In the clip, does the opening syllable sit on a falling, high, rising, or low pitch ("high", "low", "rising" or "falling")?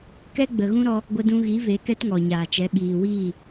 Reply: high